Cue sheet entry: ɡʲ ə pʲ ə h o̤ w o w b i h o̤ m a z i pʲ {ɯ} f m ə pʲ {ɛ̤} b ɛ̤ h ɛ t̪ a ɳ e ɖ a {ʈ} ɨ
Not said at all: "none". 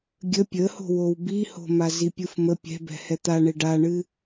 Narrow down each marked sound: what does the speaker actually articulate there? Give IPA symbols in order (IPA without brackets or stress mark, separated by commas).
ɯ, ɛ̤, ɳ